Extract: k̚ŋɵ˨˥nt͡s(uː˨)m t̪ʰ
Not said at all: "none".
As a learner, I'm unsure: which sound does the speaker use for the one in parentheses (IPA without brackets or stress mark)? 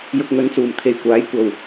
uː˨˩